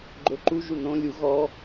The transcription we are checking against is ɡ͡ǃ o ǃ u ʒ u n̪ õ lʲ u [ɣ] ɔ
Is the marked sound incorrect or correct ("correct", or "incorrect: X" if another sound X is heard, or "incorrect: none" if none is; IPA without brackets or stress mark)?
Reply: correct